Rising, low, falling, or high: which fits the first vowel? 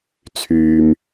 low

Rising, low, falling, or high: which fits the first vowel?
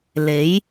rising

